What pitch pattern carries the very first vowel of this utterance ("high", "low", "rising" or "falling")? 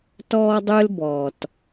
high